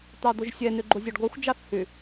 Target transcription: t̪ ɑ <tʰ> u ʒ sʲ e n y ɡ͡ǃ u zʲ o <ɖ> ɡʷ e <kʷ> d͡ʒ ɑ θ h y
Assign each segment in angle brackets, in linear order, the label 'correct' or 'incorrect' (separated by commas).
incorrect, correct, incorrect